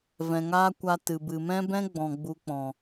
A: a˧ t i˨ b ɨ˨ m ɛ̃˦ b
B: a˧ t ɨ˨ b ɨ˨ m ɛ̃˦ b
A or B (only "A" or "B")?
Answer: B